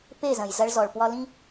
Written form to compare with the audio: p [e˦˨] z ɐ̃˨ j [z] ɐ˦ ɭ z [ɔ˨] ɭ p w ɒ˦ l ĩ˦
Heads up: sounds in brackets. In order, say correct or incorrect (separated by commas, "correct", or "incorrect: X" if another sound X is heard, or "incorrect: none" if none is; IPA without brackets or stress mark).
correct, correct, correct